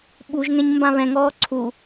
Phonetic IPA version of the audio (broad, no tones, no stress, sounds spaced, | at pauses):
ɓ u ʒ ŋ ɛ̃ ɲ m b ã β ɛ̃ ŋ ɔː ǀʰ u